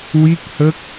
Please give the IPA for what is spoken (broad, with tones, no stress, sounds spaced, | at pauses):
w i˦˥ k̚ h ə˦˥ k̚